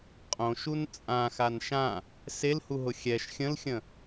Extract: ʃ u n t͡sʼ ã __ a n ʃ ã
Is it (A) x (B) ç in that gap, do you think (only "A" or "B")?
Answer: A